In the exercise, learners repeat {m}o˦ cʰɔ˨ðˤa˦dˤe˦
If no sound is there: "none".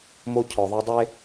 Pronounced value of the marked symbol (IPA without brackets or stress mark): m